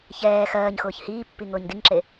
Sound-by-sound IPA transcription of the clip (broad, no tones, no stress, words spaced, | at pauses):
çɛː xɜːɲxʊːç hiːpːi ŋʊːɲdiŋǁe